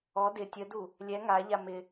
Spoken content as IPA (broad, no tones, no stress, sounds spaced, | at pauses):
ɔ d ɪ tʲ ə d u | lʲ ɛ ŋ a ʎ a m ɪ